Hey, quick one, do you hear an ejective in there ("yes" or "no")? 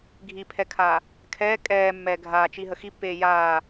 yes